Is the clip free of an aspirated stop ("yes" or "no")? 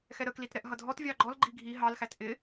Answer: yes